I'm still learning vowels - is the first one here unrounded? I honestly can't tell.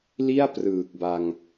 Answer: yes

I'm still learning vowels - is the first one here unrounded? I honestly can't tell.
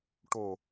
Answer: no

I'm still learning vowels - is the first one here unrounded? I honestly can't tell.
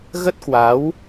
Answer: yes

